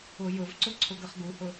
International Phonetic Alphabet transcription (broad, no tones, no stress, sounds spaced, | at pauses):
ʊ j ʊ v ǀ ʊ ǀʰ ʊ ɡ ə χ ɡ u h ʊ